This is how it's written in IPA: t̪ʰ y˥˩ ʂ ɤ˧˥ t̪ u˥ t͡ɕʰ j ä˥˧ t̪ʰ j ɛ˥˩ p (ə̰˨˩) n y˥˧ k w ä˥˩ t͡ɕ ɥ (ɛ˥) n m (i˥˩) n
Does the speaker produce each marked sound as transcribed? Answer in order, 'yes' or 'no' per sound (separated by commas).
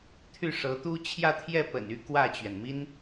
yes, no, no